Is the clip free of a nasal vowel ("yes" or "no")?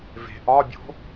yes